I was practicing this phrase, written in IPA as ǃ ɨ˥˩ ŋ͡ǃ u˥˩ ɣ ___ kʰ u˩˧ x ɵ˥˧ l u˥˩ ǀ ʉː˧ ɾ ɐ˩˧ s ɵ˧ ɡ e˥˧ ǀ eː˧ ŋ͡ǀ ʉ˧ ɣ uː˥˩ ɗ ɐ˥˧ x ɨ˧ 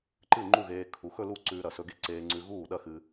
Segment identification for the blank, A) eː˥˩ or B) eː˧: B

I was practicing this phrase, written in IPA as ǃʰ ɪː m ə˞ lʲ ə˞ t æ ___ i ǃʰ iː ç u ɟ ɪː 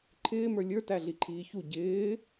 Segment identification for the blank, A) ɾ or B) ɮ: B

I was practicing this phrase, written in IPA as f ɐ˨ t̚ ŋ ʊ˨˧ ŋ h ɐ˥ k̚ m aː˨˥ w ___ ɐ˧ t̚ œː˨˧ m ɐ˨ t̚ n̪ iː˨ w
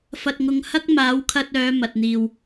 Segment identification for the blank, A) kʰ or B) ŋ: A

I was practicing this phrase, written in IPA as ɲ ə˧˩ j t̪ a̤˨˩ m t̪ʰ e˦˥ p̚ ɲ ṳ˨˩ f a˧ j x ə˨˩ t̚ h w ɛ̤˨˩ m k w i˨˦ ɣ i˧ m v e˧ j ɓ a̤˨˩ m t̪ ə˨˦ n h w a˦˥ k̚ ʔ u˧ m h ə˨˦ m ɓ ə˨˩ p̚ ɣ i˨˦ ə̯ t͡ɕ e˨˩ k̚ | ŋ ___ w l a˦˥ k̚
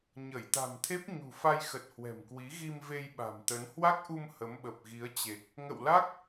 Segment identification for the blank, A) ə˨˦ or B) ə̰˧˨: B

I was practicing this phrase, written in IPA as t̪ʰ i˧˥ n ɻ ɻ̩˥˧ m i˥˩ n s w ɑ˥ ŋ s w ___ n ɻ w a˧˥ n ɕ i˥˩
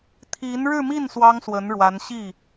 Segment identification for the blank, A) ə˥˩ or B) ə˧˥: B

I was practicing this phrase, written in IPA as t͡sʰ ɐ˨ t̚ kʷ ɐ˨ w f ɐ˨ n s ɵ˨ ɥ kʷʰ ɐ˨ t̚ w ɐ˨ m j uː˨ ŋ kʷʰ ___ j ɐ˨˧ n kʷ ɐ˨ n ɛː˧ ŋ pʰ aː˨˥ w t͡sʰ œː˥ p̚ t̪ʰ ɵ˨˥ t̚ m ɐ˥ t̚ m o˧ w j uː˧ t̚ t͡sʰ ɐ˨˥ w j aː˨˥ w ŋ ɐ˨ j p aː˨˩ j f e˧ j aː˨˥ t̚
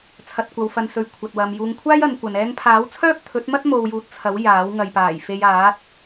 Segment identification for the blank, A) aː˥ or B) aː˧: A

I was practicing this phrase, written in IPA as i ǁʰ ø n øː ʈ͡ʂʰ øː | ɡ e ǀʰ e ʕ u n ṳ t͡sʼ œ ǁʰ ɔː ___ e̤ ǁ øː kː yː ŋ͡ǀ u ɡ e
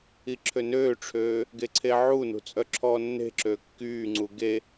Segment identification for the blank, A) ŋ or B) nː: B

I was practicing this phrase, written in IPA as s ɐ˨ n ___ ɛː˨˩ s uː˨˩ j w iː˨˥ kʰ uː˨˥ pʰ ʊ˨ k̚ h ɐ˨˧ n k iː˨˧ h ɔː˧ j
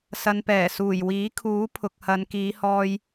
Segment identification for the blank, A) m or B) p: B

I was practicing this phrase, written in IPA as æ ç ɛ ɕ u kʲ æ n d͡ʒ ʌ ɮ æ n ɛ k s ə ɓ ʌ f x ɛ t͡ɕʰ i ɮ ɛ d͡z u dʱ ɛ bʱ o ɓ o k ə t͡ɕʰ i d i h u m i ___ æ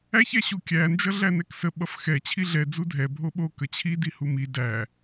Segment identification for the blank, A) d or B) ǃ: A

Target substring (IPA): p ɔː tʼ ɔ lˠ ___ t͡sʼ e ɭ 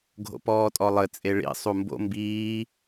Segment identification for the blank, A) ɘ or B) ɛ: A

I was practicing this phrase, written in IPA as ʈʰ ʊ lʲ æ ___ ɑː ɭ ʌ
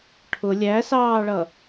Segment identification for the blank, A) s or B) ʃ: A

